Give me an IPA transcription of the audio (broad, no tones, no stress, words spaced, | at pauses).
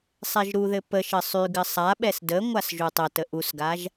sˤɛʒɾuðɘ pəʃɘ sˤyɡɘ sˤaɓɛs də ŋʷasʒutˤətə ʔusɡaʒ